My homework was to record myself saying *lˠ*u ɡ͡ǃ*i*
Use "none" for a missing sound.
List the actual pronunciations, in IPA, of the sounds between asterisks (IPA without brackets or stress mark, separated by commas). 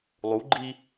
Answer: lˠ, i